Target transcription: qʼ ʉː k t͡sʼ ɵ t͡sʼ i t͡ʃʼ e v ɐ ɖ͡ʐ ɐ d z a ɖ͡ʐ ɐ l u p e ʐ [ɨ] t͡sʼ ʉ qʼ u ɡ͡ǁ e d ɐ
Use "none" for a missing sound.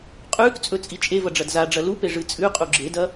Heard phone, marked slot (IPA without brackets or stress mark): ɨ